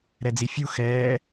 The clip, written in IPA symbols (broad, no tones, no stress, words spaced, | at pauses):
ɾɛd͡zifʲu xɛː